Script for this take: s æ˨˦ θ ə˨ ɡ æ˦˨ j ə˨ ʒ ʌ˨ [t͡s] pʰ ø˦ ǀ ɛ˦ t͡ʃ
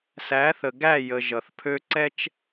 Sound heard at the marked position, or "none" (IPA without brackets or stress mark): θ